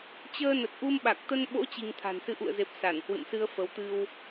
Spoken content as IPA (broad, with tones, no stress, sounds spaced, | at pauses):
t͡ɕ əː˧ n ə˨˩ t̚ ʔ u˧ m ɓ a˨˩ k̚ t̪ ə˧ n ɓ o̰˧˥ t͡ɕ i˧ ŋ t̪ʰ a̤˨˩ n s ɨ˨˦ ʔ ṵ˧˨ ə̯ z e˨˩ p̚ s a˧˩ n h w ɨ̰˧˨ m s ɨ˧ ə̯ f ə˨˦ w t̪ ɨ˧ w